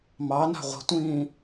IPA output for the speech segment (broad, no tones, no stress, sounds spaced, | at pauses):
m ɑ n a̤ ʁʷ i̤ tʷ ĩː